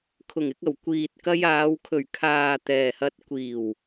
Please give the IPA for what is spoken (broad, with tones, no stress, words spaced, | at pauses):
kʰʊ˨˩ŋɪ˧k̚ɐ˨˩w kʷiː˨t̚ kɐ˧jaː˨˧wkʰɵ˨˩ɥ kʰaː˨ t̪ɛː˨hɐ˧t̚ kʷiː˨˩w